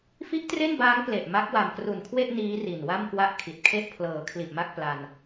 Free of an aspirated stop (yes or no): no